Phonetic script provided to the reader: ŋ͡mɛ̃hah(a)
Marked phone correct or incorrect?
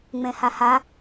correct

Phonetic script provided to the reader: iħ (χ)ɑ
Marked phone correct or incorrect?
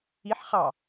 correct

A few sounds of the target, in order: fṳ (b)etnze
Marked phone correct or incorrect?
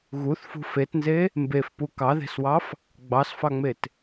incorrect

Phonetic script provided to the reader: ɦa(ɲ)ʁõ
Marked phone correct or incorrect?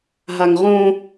incorrect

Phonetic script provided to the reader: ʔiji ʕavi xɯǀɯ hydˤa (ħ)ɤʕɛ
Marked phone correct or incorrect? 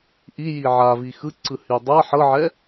correct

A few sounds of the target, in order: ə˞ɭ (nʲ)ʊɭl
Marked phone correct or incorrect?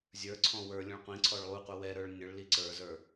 correct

